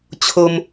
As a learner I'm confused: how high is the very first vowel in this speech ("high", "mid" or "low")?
mid